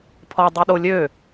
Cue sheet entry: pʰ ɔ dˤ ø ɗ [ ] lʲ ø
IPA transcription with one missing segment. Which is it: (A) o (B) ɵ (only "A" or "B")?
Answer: A